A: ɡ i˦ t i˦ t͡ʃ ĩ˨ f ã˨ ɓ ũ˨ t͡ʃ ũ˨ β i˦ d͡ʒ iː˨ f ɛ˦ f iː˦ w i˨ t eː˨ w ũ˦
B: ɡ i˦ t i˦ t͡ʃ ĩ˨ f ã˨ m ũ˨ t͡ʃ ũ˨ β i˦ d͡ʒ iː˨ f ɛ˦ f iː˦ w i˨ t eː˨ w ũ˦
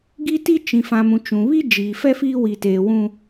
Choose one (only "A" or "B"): B